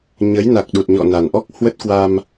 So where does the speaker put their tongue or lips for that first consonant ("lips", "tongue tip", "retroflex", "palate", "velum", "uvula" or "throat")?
palate